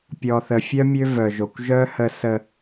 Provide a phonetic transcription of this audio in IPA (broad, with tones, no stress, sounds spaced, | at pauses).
pʲ ɔ˨ θ ə˨ fʲ œ˦ mʲ ø˦ v œ˨ ʒ o˨ kʷ ʒ œ˦ h ə˨ s ə˨